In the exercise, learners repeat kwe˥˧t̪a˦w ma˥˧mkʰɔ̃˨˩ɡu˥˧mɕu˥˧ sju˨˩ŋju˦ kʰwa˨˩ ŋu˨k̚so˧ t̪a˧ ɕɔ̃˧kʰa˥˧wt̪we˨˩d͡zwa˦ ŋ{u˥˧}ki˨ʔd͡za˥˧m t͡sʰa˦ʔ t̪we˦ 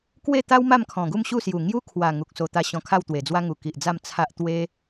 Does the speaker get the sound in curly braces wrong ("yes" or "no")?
yes